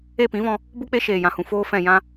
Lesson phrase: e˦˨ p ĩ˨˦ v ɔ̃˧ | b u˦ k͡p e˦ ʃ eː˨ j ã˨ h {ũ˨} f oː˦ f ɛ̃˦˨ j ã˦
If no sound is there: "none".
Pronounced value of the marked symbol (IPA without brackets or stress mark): ũ˨